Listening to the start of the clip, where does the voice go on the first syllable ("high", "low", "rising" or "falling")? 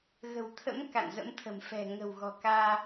low